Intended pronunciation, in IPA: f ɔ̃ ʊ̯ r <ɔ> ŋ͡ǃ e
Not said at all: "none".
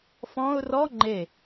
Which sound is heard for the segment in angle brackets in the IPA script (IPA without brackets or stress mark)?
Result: ɔ